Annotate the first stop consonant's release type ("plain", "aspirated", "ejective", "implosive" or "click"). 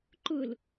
click